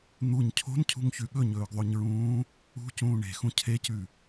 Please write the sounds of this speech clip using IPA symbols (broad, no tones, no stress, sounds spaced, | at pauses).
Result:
n̪ u ɲ cʰ o̤ n cʰ ṳ ŋ ç ʉ ɠ ɵ ɲ ɵː ɡ ðˤ o ɲ ɹ ũː | ṳ c ũː ɳ e̤ x ũ cʰ e c ʉ